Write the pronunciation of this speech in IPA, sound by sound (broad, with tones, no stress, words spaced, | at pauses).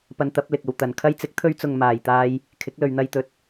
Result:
pɐ˧nt̪ɐ˨˥p̚ lɪ˨k̚ɐ˨wt̪ɐ˨n kʰɐ˧jt͡sɪ˨˥k̚t̪ʰɵ˧ɥt͡sʊ˨ŋ maː˨˩jt̪aː˧j | kʰɪ˨˥k̚lɵ˨ɥn̪ɐ˧jt̪ɵ˨˥t̚